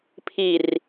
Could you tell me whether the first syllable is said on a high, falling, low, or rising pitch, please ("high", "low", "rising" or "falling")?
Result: low